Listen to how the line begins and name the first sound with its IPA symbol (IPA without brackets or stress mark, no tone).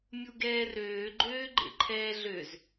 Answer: mʲ